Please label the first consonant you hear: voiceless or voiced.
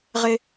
voiced